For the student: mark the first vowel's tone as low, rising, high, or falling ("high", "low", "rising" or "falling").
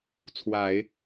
low